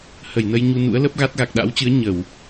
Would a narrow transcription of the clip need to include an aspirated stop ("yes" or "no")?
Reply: no